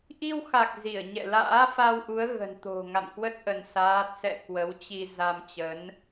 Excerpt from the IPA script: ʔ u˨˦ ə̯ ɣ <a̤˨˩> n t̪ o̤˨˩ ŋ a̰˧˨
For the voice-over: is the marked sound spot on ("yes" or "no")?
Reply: no